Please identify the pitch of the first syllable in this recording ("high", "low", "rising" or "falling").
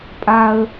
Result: low